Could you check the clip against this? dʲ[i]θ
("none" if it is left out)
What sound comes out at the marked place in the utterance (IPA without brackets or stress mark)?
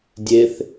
e